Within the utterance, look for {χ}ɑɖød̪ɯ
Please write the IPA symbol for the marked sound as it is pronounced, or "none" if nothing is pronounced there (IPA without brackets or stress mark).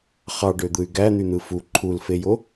χ